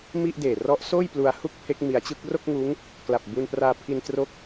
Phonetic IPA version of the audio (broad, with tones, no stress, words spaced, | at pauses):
mi˥˩ʔ deː˨˩rɔ˦˥ʔ soː˥˩j plu˧a̯hu˥˩k̚pʰe˦˥k̚ mi˧a̯t͡ɕɯ˥˩k̚ ro˥˩k̚ŋuː˦˥ŋ | kla˨˩p̚bu˧npraː˧pʰi˧n tro˦˥k̚